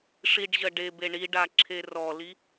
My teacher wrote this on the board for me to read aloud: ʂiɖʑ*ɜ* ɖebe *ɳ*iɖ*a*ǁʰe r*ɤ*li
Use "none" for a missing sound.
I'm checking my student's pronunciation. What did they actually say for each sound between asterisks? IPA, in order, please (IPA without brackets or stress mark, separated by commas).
ɜ, ɳ, a, ɔ